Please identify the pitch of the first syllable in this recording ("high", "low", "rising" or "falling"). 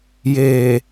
low